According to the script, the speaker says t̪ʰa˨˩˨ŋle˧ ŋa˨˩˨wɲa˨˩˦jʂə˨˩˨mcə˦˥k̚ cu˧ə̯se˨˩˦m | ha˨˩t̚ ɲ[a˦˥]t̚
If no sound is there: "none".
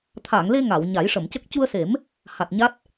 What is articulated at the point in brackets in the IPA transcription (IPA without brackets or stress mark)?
a˦˥